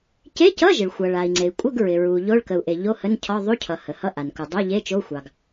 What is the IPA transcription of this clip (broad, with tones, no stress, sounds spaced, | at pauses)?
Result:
c e˧˥˧ c ʌ˧˥˧ ʒ ɪ˩ ɭ xʷ ʌ˩ ɭ a˩ i̯ ŋ͡ǀ e˩ i̯ kʷʼ ə˧˥˧ ɡ ɹ ɪ˩ ɹ u˩ ʎ o˧˥˧ ɭ k ə˩ u̯ ʔ e˩ ʎ o˧˥˧ h ə˧˥˧ n cʰ ɒ˧˥˧ ðˤ u˧˥˧ cʰ ʌ˩ h ə˩ h ʌ˧˥˧ ʔ a˩ n k u˩ dˤ o˧˥˧ ʎ e˧˥˧ t͡ʃ o˧˥˧ xʷ ɑ˩ ɡ